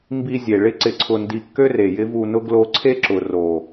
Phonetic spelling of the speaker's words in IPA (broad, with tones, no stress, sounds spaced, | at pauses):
m b i˧ zʲ e˨ ɭ ɪ˦ ǀ ɪ˧ ǀʰ ʊ˧ n d i˧ kː ø˦ r e˨ j ɪ˦ v u˧ n ʊ˦ ɡ l o˧ ǀʰ e˦ ǁ ʊ˨ r o˨